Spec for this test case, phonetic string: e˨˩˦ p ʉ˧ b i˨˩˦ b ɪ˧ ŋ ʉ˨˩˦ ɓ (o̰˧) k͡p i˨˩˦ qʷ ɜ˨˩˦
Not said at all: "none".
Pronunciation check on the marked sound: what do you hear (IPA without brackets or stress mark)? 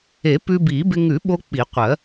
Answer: o˧